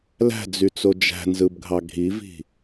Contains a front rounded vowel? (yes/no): yes